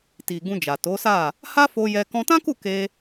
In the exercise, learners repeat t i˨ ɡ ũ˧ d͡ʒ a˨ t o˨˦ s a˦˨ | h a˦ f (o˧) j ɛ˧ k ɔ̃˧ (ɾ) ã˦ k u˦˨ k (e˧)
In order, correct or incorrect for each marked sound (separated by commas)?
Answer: correct, incorrect, correct